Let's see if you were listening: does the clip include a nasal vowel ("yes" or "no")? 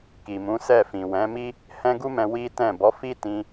yes